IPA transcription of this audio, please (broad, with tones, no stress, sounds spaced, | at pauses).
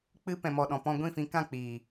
k͡p ɨ˦ p ɛ̃˨ m ɔ˨ ɗ ɔ̃˨ p ɔ̃˧ ɡʷ ĩ˦˨ f ĩ˧ k ã˦˨ k͡p iː˨